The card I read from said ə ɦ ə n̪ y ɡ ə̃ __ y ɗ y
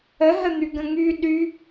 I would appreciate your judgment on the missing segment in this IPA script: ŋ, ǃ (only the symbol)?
ŋ